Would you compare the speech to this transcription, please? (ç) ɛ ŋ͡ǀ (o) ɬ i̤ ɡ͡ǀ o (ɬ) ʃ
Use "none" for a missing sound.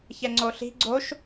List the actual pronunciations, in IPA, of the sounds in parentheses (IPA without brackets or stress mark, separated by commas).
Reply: ç, o, none